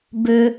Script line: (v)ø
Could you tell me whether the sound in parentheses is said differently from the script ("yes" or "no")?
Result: yes